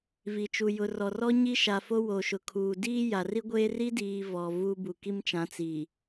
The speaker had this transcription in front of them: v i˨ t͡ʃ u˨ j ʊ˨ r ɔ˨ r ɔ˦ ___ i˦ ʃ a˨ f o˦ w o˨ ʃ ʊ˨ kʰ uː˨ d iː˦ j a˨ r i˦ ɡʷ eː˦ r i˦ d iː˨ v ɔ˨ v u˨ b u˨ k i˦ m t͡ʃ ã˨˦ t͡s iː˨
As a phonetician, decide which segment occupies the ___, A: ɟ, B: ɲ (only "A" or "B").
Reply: B